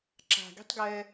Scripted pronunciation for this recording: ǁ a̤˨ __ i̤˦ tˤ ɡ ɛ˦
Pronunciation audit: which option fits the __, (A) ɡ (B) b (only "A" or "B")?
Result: A